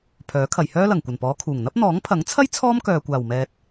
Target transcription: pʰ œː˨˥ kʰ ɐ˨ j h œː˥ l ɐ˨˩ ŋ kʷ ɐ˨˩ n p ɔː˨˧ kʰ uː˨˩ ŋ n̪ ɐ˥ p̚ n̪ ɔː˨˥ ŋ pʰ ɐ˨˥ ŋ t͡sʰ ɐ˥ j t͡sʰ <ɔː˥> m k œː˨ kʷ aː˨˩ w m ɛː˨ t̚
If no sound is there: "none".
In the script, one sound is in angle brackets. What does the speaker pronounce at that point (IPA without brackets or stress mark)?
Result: ɔː˥